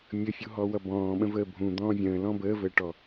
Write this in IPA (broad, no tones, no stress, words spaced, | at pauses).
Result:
mʲəfʲuɦɔwʌ bɔ̃ːɓə̃vəː bʱũd̪ɔ̃ː vʲə̃ːlɔ̃ bəːvəːʈɔ